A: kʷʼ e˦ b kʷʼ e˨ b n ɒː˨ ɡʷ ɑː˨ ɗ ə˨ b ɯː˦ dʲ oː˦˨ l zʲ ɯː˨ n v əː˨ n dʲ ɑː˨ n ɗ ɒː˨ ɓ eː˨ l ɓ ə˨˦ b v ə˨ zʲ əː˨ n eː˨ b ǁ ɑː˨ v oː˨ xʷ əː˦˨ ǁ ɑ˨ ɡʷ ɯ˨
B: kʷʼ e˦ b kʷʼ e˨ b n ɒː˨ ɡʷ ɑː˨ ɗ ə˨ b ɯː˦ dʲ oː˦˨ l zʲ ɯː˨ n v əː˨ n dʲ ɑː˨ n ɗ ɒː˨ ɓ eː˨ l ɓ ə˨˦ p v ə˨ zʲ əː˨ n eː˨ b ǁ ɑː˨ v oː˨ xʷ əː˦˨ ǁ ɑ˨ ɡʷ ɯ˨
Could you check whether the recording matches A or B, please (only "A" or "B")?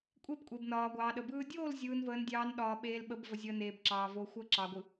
A